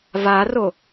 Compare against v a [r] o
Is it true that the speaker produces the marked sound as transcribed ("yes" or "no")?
yes